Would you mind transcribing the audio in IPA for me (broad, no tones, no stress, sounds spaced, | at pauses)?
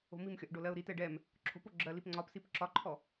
o̤ m i m xʲ ɒ ʔ ɖ o l ɜ ʊ̯ ɾ i t ɛ ɖ ɛ m | ǁʰ o̤ p o ɡ͡ǁ ɜ l i p ŋ͡ǀ ɒ p s i p ǁ ɒ ǃʰ ɔ